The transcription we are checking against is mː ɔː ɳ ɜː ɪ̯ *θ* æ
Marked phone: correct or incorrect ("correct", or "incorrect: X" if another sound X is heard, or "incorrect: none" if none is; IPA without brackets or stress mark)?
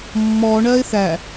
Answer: correct